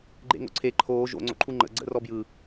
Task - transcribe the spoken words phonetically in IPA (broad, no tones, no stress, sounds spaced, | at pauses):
ɡ͡ǃ ḛ ŋ o̰ ǀʰ e ǃʰ oː ʒ o̰ ŋ͡ǀ o̰ ǃʰ u ŋ͡ǃ ə̰ ɡ͡ǀ ə̰ r ɔ b j ɯ